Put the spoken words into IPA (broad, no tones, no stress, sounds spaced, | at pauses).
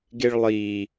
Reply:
ɡ e ɭ lˠ iː